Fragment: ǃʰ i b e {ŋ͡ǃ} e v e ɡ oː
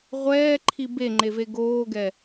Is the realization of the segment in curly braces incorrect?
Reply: no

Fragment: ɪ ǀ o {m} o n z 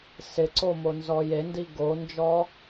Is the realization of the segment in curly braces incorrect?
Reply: no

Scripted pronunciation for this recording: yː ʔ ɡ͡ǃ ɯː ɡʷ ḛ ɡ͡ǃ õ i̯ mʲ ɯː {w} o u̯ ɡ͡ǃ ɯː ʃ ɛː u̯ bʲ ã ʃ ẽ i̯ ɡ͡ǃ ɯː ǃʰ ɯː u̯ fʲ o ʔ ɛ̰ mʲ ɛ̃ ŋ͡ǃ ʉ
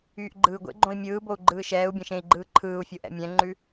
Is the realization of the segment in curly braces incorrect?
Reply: yes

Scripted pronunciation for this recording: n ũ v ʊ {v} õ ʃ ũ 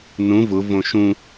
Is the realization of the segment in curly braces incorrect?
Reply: no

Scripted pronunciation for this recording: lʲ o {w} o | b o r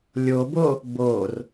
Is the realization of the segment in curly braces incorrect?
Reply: yes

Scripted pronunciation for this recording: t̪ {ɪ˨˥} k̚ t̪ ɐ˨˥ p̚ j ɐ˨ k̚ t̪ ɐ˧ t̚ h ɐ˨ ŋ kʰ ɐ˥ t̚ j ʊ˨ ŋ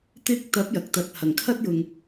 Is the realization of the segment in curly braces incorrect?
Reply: yes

